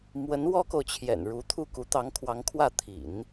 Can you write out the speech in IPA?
m w ə˧˥ n w ɔ˥ k o˨ ʊ̯ t͡ɕʰ j ɛ̰˨˩ n ɻ u˧˥ t̪ʰ u˥˩ k u˧˥ t̪ ɑ˧˥ ŋ kʰ w ɑ˧˥ ŋ kʰ w ä˥˩ t̪ʰ ḭ˨˩˦ n

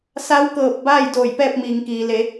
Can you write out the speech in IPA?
s a˧˥ w k ɤː˧˩ p̚ b aː˥˨ j d oː˧˩ j p ɛː˥˨ p̚ m iː˩ ŋ k iː˩ l e˩˧

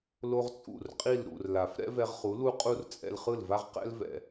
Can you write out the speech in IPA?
l o˥ ʁ t͡sʼ ṵ˥˩ r qʼ i˥˩ l ɾ ṵ˩ r l a˩ f ɾ ɛ̰˥ v ɛ˧ ʁ χ u˩˥ l u˥ qʼ u˥ r t͡sʼ ɛ̰˧ l χ ɯ˥˩ l v a˥ ʁ q ɛ̰˥ l v ɛ̰˩

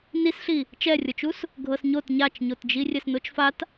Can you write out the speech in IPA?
n i s ɬ i | t͡ʃ ɛ rʲ ɤ t͡ʃ u s | ɡʱ ɤ s ɲ o t ɲ a t͡ʃ ɲ o t d͡ʒ i rʲ ɛ s n o t͡ʃ f a t

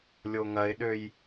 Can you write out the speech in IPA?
lʲ o ŋ ɐ ɪ̯ ɗ ø j

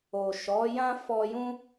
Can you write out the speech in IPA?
o˨ ʃ ɔ˨˦ j ã˦ f ɔ˦ j ũ˦

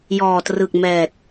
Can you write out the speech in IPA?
j ɔː˨˩ t r ɯ˨˩ k̚ m ɛː˨˩ t̚

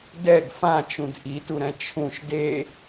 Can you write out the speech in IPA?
d ɛ ɡ f ã t͡ʃ ũ d ʔ i t u ɾ ɛ̃ t͡ʃʰ ũ ʃ d e

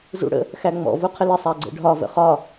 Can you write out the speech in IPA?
z ṵ ɽ ə̰ | x æ ŋ͡m ɔ̰ v u qʰ ɪ l ɪ sˤ æ ɡ͡ǀ ə̰ ɖʱ ɒ v ə̰ χ ɒ

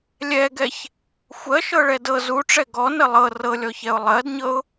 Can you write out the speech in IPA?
lʲ ɛ ɡ ɛ ç | xʷ ɜ ʃ ɤ ɭ ɛ d ɤ z u ʈ͡ʂ ɛ ɡ ɔ n ə lˠ ɤ r ɤ lʲ ɔ ç ɛ ʊ̯ lˠ ɜ d ɲ ɤ ʊ̯

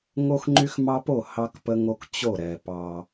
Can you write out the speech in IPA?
ŋ o˦ x ŋ͡ǃ y˦ x m ɑ˦ p o˦˨ h ɑ˦ k p ə˦ ŋ o˦ k t͡ɕ o˦˨ ɾ ɛ˨ p ɑ˦

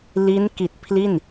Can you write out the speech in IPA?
l i˦˥ n k i˨˩ t̚ pʰ l i˥˩ n

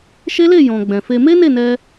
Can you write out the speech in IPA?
ʃ e˦ l e˦˨ j ɔ̃˨ ɡ͡b ɛ̃˨ f e˧ m e˦ n e˦˨ n ɛ˧

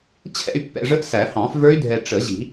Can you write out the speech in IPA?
t͡ɕʰ ɛ̰˥˧ y̯ pː ɛ̰˨ ʐ ə˦˥ ʔ s æ˨˩˦ h ɑ̃˨˩˦ f v ə˞˦˥ y̯ dʱ ɛ˨ ʈ͡ʂ ə˨˩˦ ʑ i̤˨˩˦

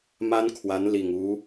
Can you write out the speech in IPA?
m a˥ n kʰ w a˧˥ n l i˨˩ ŋ u˧˥

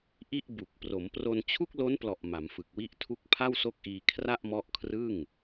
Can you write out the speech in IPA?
ʔ i˥˩ ʔ b u˨˩ k̚ p r o˩˦ m p r o˧ n t͡ɕʰ u˥˩ k̚ l o˦˥ n p l ɔ˨˩ ʔ m a˩˦ m f ɯ˨˩ k̚ w i˥˩ ʔ tʰ u˥˩ k̚ pʰ a˥˩ w s o˦˥ k̚ ʔ iː˧ kʰ r a˥˩ ʔ m ɔ˦˥ ʔ kʰ r ɯ˥˩ ŋ

